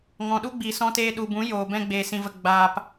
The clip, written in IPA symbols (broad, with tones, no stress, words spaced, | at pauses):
ŋɔ̃˨ɗu˦ɡ͡biː˨ sɔ̃˧teː˧ ɗu˨bũ˨˦ joː˨bɛ̃˦ ɡ͡beː˨sĩ˨və˨ ɡ͡baː˨p